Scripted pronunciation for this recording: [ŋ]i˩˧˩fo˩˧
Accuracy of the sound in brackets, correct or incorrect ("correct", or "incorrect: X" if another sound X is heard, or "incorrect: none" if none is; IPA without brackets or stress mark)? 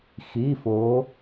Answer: incorrect: x